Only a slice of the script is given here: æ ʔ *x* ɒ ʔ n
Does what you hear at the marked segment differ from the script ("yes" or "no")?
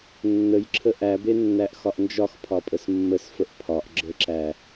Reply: no